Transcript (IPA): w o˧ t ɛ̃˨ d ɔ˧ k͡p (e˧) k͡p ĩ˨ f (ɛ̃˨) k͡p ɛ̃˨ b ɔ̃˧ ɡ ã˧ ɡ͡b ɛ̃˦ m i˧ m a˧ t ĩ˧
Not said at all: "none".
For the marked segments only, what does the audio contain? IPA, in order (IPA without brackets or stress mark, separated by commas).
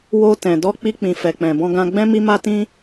i˧, ɛ˨